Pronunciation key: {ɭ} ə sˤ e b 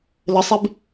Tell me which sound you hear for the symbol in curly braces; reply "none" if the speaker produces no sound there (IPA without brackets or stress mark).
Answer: l